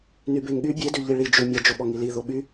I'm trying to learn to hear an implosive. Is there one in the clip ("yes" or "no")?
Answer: yes